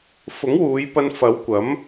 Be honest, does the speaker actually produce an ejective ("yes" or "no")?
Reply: no